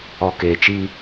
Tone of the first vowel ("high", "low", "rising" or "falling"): low